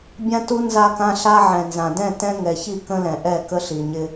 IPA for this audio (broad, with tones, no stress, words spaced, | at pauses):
bʲã˦tu˦ nza˦kã˦ɬa˦ ʕɛ̃˨nzã˨ dɛ̃˦˨ tɛ̃˦ŋɛ˨çi˦˨ kə̃˦lɛ̃˨ʔɛ˦˨ kə˦ɬi˨ɲɪ˦